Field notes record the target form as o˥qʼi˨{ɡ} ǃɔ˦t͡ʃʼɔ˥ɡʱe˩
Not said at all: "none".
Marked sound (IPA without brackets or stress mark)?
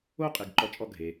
ɡ